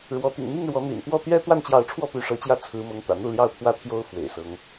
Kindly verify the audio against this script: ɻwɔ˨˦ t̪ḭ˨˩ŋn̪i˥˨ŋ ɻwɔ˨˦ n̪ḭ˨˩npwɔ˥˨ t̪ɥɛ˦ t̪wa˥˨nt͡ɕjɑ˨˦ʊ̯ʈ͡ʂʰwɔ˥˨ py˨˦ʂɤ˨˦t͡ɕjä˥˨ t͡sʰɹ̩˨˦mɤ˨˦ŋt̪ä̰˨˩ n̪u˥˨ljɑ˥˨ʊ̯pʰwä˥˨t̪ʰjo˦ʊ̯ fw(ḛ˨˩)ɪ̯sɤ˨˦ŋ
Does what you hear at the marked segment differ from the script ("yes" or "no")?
no